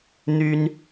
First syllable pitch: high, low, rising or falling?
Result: high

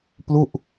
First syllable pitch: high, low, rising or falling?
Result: falling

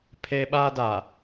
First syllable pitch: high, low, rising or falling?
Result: high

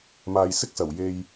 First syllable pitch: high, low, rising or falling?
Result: low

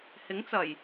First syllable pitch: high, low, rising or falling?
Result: rising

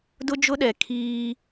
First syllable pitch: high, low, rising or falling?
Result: high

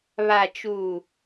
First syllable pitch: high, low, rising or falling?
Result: low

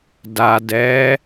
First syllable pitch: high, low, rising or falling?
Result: low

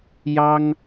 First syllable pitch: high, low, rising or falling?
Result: high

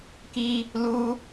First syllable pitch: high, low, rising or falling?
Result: high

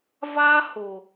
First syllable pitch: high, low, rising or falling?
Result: high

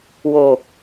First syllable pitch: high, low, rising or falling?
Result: low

